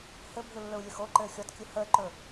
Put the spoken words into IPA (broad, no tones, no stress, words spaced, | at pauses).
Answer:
hɘbʱɯ lːɵu̯lʲɵxoǃɘː xʲɔtkʲɵ həːǃɵ